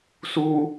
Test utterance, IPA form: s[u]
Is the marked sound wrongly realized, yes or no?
no